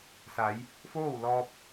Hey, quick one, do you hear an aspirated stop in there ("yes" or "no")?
no